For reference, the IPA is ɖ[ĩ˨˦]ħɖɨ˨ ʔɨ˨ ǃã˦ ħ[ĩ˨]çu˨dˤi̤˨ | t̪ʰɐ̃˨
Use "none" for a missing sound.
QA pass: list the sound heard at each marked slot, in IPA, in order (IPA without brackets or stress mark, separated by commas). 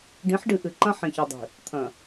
ĩ˨˦, ĩ˨